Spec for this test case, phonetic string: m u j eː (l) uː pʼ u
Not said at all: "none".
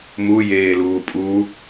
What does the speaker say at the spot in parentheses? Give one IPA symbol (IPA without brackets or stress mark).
l